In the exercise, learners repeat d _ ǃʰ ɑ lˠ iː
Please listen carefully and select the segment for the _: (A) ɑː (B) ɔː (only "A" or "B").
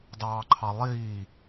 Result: A